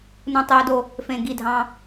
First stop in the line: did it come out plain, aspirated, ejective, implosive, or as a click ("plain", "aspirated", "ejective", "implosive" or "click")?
plain